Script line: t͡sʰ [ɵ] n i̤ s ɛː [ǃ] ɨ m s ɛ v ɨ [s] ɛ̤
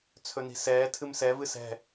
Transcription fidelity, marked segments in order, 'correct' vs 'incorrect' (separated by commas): correct, incorrect, correct